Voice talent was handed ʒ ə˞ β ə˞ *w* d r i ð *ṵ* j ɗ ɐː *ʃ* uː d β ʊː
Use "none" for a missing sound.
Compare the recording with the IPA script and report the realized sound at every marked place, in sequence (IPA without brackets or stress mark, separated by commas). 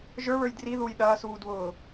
j, u, s